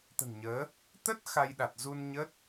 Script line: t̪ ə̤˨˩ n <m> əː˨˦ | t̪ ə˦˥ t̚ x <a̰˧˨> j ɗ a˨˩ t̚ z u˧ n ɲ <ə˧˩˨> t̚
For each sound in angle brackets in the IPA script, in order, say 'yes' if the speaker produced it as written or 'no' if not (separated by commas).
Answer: no, no, no